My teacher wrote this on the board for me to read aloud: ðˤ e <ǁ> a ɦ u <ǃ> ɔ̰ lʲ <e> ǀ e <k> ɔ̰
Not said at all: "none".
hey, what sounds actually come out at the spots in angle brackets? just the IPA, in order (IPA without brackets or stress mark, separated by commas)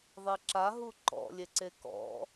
ǁ, ǃ, e, k